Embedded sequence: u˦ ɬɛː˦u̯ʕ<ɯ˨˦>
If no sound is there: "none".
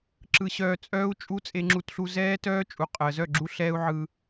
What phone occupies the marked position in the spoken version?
ɯ˦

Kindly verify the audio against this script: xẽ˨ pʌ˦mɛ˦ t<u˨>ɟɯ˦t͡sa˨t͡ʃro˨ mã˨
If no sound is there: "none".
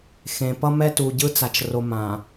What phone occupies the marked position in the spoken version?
u˨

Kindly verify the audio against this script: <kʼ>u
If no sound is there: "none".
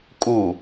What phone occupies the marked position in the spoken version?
kʼ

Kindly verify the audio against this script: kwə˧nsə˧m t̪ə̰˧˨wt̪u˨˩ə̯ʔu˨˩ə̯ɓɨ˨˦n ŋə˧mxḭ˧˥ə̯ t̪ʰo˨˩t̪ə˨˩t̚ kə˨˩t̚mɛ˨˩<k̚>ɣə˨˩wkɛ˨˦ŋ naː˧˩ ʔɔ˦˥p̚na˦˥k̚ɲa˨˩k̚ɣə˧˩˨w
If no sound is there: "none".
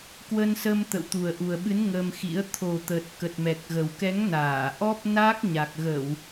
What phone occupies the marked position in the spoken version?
k̚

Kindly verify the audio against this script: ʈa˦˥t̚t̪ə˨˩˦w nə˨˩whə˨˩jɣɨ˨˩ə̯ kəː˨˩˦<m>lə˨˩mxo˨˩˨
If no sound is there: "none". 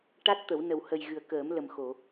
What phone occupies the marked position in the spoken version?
m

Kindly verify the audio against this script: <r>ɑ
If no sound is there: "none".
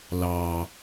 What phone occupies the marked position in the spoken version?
l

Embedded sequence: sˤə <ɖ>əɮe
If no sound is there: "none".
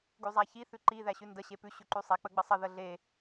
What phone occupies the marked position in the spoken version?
ð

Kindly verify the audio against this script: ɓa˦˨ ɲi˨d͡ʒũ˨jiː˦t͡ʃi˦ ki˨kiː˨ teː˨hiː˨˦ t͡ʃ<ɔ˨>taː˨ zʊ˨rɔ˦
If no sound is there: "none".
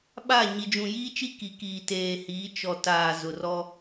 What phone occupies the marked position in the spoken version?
ɔ˨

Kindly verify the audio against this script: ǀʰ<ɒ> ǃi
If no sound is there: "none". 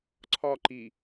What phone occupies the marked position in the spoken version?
ɒ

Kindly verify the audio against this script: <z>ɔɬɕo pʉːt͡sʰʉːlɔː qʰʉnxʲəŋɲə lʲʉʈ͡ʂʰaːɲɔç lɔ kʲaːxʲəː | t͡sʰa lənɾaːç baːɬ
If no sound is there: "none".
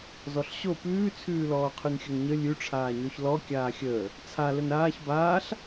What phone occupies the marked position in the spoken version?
z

